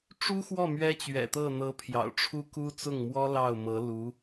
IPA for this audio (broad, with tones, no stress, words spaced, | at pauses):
ʈ͡ʂu˥xwɔ˥˩ mɥɛ˥t͡ɕɥɛ̰˨˩t̪ɤ˥˩ n̪ɤ˧˥ pʰjɑ̰˨˩ʊ̯ʈ͡ʂʰu˥ku˥ t͡sʊ˥˩ŋmwɔ˥ lɑ˥˩ʊ̯mɤ˧˥ lu˧˥